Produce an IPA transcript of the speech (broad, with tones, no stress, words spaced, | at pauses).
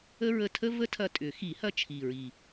ə˥ɹə˦˨ tʰə˥ və˥tʰɐ˦˨tʼʏ˨˩˦ xi˨˩˦hɐ˦˨ t͡ʃʰi˨˩ɹi˨˩